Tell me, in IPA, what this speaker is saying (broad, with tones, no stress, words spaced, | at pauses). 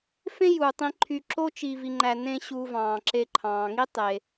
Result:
fẽ˥juː˩tˤĩ˨ǃʰy˨ ǁo˥t͡ʃi˨ vi˨ŋ͡ǃæ˨ nẽ˦ ɕu˨ vɑ̃ː˩ǁe˨ǃʰɑ̃ː˩ŋi˥ tˤe˩